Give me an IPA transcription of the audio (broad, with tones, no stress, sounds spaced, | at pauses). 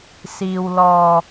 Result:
s iː˧ w l ɔː˧